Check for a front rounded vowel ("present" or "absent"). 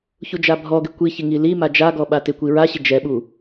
absent